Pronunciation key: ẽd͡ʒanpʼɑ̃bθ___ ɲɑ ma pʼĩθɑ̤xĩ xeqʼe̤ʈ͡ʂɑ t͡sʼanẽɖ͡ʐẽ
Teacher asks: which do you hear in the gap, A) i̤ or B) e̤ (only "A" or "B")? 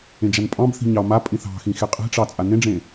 A